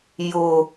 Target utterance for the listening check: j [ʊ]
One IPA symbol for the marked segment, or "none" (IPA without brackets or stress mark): ʊ